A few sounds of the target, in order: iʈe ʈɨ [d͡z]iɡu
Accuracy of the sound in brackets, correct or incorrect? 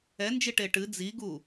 correct